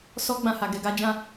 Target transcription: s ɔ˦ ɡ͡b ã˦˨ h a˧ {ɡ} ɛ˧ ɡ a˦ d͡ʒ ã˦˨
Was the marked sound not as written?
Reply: no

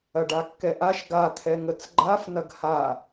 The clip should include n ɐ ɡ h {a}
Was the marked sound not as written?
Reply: no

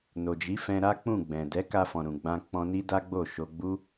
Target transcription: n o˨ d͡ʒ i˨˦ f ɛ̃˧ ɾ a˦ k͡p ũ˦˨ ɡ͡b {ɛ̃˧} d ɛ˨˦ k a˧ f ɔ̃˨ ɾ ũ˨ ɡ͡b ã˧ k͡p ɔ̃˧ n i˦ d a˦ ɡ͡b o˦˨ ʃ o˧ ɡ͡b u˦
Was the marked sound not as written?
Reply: yes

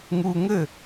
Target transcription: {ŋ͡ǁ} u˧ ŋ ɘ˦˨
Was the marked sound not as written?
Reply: yes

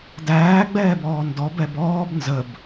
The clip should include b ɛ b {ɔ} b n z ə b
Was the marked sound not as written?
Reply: yes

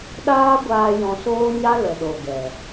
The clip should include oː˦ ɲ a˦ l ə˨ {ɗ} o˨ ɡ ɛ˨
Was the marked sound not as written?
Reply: no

